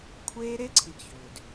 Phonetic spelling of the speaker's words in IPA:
kʷʰ eː˦ ɾ e˦ ǀʰ i˨ ɡ ç ʏː˨ d

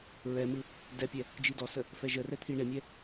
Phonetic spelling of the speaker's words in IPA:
ɹ ɛ m ɯ | d ɛ pʲ ɛ | d͡ʒ i d ɔ s ə | f ɛ ʒ ə r ɛ t̪ʰ i ɳ e mʲ ɛ

